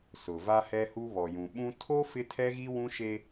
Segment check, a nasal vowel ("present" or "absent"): present